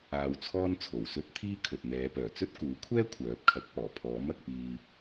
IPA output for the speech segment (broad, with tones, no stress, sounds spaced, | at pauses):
aː˧ w t͡sʰ ɔː˥ n t͡sʰ o˨˩ w s ɵ˥ t̚ t̪ʰ iː˥ kʰ ɵ˨ t̚ n̪ ɛː˨˧ p œː˨˩ t͡s ɵ˥ t̚ k uː˨˥ kʷʰ ɛː˥ kʷʰ œː˨˥ p̚ kʰ ɐ˨˥ k̚ p ɔː˨˩ pʰ ɔː˨˥ m ɐ˧ k̚ p iː˧